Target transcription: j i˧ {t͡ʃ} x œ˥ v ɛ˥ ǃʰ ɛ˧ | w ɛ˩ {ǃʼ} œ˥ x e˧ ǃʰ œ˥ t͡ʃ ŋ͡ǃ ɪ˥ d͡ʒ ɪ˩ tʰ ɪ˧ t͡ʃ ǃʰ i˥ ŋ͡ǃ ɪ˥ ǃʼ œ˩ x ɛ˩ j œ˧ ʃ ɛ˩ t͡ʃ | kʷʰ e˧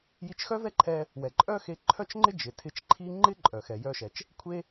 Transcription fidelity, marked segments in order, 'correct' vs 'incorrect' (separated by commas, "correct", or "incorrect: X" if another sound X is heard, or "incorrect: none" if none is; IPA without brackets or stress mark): correct, correct